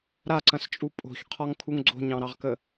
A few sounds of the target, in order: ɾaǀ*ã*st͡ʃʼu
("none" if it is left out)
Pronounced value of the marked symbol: ɐ̃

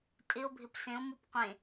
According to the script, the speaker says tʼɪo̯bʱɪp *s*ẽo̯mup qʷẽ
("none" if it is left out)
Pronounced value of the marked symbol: s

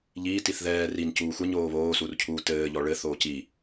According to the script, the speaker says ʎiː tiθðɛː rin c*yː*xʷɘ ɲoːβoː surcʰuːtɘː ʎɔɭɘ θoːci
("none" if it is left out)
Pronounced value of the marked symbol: uː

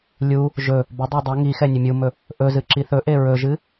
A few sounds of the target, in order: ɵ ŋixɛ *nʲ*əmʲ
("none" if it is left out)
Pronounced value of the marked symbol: nʲ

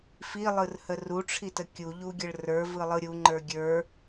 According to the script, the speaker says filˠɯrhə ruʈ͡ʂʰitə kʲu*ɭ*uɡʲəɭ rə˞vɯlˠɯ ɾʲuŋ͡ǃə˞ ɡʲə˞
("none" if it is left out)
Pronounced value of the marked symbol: ʎ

